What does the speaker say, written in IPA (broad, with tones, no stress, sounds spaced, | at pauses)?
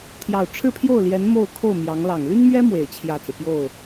t̪ʰ j ɑ˨˩ ʊ̯ ʈ͡ʂʰ ɻ̩˥˧ pʰ j o˥˩ ʊ̯ l j ɛ˧˥ n m o˥˧ ʊ̯ kʰ o˥˩ ʊ̯ m j ɑ˧˥ ŋ l ɑ˨˩ ŋ l y˥ n m ɥ ɛ˥ m w e˨˩ ɪ̯ t͡ɕʰ j ä˥˩ t͡s ɹ̩˩ p j o˥˩ ʊ̯